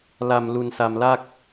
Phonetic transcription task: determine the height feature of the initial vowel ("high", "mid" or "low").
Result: low